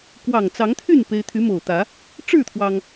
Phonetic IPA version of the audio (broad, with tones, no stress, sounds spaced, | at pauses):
k w ɑ˨˩ ŋ t͡s ɑ˨˦ ŋ t̪ʰ y˥˨ n p e˦ ɪ̯ t̪ʰ y˨˦ m o˨˩ ʊ̯ t̪ ä˨˦ | ʈ͡ʂ ɻ̩˥˨ t̪ʰ w ɑ˩ ŋ